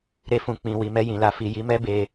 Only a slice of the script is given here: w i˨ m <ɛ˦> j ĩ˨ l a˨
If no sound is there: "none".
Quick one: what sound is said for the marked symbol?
ɛ˧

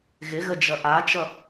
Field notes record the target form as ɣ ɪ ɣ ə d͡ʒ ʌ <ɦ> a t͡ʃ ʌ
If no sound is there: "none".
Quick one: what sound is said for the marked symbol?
ʔ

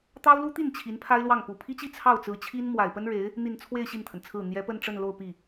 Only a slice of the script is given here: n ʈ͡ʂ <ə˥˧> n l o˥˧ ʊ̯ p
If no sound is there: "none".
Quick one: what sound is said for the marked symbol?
ə˥˧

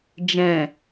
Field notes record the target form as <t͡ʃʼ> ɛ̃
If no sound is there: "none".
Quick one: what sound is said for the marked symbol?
d͡ʒ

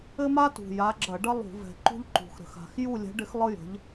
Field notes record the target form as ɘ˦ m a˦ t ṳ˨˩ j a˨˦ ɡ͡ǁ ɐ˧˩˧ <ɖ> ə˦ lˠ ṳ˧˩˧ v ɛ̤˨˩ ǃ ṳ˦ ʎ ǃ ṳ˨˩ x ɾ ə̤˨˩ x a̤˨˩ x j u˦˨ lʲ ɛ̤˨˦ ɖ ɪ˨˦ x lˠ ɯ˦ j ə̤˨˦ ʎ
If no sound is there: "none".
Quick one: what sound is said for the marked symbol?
ɖ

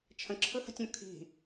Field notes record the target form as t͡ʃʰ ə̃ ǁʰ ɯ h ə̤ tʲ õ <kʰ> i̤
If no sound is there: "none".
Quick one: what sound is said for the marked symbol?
kʰ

